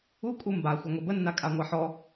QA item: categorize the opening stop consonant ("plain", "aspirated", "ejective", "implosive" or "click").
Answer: ejective